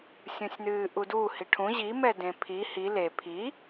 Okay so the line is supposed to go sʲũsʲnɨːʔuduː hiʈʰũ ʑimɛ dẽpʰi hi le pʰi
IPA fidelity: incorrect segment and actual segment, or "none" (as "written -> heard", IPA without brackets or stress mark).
none